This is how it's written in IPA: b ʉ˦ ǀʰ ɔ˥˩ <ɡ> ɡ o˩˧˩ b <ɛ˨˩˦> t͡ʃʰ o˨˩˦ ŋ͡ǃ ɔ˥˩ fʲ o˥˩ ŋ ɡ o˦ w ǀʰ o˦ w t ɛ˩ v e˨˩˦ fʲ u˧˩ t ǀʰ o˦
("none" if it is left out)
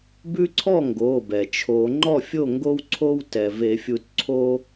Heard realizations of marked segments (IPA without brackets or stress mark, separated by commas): ŋ, ɛ˩